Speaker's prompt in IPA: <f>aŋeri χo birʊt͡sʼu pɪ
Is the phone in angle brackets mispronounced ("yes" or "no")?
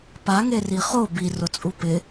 yes